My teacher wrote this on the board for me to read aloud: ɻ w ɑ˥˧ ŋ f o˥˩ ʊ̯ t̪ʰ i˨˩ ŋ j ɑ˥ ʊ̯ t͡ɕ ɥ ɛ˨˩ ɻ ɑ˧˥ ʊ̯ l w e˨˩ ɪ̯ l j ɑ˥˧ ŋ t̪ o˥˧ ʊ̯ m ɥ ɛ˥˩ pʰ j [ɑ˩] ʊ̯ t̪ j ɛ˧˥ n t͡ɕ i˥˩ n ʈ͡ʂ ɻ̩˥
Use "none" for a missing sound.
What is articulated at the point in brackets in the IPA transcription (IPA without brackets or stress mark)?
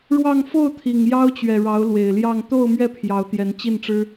ɑ˧˥